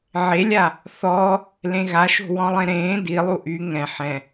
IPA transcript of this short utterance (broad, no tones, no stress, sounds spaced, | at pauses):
ʕ e lʲ a | θ ɔ | l ẽ ɣ a ʃ o̤ w ɔ̃ lˠ ẽ ɾ ẽː d i lˠ u ʔ y ŋ ɛ̃ ħ ɛ̃